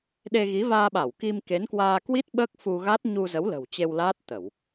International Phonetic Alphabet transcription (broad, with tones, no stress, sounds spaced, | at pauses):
ɗ e˧ ɣ i˨˦ v aː˧ ɓ a˧˩ w k i˧ m k e˨˦ n k w aː˧ k w i˦˥ t̚ ɓ əː˦˥ k̚ f u˧ ɣ a˦˥ t̚ ɲ u˧ z ə˨˦ w l ə̤˨˩ w t͡ɕ e˧ w l aː˦˥ t̚ t̪ ə˧˩˨ w